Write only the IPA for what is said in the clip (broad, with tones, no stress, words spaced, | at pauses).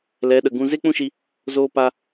lɛ˨˦ɗə˨ɡũ˧ ze˦k͡pũ˦ʃi˧ | zoː˦pa˦